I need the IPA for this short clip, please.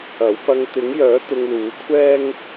ɐ˨˥ w p ɐ˧ ŋ t̪ ɪ˨˥ ŋ j œː˨˥ t̪ ʊ˧ ŋ l uː˨˥ kʷʰ ɛː˥ ŋ

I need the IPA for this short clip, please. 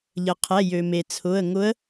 ʎ ə˩ qʰ ɛ˩˧˩ j ø˩ m e˩ t͡sʰ ʊ˩˧˩ ə̯ ŋ ʊ˧˥ ə̯

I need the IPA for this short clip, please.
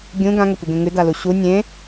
ɡʲ ũ ɡ ã ŋ ɵ tʷ i ɡ ẽ ŋ ʉ d a l u ɕ u nʲ ẽ

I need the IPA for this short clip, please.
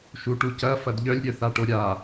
ʃ u ʈ u c ɐ f ɐ d ʎ œ lʲ ɾʲ œ θ a ʈ o ɾʲ a

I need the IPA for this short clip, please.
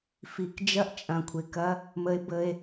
f i˦ k d͡ʒ ɐ˦ ʔ t͡ʃʼ ɐ̃˧ kʷʰ ɪ˧ k ɐ˦ | m ə˦ e̯ b ə˦ e̯

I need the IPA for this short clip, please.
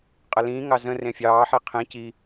qʼ ə l ĩː ŋ ɑ z ə̃ r ẽ fʲ ɑː ħ i qʰ ĩ c i

